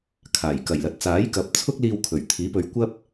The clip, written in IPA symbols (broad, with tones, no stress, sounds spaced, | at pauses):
kʰ aː˨˩ j k ɐ˨˩ j l ɐ˨˥ t̚ t͡s aː˨˥ j k ɐ˨˥ p̚ t͡sʰ ʊ˥ k̚ l iː˧ w kʰ ɵ˨˩ ɥ t̪ʰ iː˨˥ p ɵ˨˧ ɥ kʷ ɐ˥ p̚